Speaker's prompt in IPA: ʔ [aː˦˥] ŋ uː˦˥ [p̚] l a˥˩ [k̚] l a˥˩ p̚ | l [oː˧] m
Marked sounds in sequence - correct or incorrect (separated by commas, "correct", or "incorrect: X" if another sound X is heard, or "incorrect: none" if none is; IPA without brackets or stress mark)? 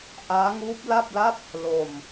correct, correct, incorrect: p̚, incorrect: o˧